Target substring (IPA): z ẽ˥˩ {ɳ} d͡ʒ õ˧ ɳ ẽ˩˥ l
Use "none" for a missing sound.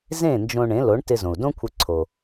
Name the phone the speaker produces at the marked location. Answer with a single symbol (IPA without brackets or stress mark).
n